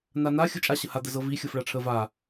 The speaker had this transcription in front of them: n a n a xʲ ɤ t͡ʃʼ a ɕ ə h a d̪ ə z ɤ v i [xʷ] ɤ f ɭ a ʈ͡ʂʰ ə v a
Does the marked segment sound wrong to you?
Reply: yes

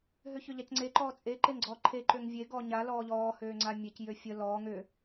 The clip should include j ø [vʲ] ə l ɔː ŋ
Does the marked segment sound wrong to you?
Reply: yes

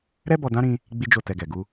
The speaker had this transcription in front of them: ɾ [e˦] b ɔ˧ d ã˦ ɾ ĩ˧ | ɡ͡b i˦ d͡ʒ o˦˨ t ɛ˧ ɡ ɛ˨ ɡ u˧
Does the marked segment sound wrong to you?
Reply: yes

